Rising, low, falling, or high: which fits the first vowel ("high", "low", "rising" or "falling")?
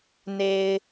low